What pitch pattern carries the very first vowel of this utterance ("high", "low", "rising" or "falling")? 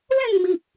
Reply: falling